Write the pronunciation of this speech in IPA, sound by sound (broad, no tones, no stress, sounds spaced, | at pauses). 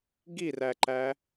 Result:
ɡ i r æ ǃ æ